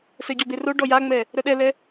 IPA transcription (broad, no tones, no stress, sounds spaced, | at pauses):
s ɛ ɟ ɔ b e r o ɖ ɔ j a ŋ͡m ɛ | ɾ œ ɗ ɛ l ɛ